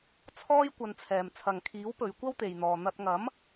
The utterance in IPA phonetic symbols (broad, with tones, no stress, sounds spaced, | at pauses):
t͡sʰ ɔː˥ j kʷ ɐ˧ n t͡sʰ ɛː˨ m t͡sʰ ɐ˨ ŋ kʰ iː˨˥ w p ɵ˨˧ ɥ kʷ ɐ˥ w t̪ e˨ j n̪ ɔː˨ n̪ ɐ˧ t̚ ŋ ɐ˨˥ m